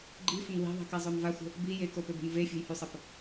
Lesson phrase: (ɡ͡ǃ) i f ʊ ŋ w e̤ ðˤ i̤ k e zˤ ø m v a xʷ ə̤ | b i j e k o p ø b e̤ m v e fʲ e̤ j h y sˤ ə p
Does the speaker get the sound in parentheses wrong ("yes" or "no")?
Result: no